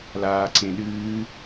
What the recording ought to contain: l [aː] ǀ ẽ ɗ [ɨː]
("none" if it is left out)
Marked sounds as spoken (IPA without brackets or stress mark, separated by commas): aː, ɨː